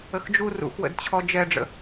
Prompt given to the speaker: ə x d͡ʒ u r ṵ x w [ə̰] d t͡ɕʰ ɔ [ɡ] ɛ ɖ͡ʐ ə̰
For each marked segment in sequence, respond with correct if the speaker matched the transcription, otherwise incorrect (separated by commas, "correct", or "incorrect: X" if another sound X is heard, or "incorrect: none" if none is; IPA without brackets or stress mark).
correct, incorrect: d͡ʒ